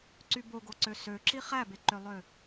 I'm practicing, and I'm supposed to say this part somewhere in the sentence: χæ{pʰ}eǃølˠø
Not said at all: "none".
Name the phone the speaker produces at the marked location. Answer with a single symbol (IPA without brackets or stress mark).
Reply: b